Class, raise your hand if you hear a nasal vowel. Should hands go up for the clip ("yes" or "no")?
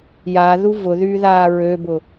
no